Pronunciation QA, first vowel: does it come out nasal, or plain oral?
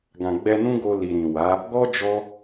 nasal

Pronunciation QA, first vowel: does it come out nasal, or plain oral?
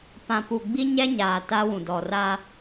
nasal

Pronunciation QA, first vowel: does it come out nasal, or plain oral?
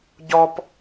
oral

